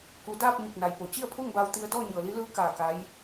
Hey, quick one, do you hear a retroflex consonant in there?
no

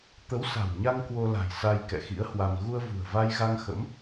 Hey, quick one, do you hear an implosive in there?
no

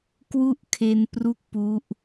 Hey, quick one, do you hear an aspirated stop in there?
yes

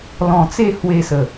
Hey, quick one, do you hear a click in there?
no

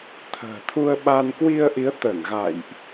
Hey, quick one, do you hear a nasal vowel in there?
no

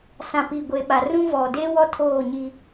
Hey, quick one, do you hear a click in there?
no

